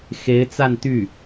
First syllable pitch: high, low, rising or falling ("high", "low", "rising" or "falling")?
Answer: rising